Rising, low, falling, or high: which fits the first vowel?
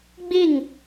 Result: falling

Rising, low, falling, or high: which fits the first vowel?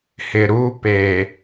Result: low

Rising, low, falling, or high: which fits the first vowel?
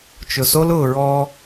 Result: low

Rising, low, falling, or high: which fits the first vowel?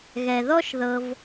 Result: low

